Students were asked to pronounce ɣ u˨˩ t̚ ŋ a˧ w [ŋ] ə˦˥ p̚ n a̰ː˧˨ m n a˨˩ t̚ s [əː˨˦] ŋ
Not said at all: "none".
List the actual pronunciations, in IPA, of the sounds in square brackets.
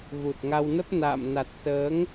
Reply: n, əː˨˦

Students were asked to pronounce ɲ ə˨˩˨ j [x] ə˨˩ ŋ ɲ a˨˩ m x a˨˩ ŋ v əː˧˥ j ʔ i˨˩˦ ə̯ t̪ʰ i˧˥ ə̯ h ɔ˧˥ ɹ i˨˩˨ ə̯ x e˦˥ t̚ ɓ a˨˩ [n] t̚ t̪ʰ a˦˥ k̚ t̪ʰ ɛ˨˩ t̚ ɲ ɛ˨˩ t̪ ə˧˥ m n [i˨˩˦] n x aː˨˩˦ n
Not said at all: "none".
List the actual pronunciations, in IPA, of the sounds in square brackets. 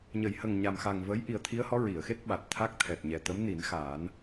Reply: h, none, i˨˩˦

